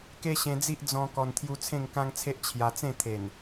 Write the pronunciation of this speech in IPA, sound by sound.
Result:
ke˦ɕẽ˧d͡zi˦ʔ d͡zɔ̃˧ kɔ˨˩nt̪ʰju˧ t͡sʰẽ˥˧ŋkã˦ŋt͡sʰe˦ʔ t͡ɕʰja˧ t͡sẽ˥˧t̪ʰe˨˩n

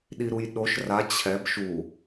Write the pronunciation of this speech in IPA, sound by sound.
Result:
ɗiɾujɗoʃ ra t͡ɕʰɛb ʃu

